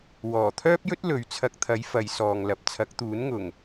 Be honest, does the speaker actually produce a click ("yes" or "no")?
no